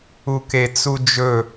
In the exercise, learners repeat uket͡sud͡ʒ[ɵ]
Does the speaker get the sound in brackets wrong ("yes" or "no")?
no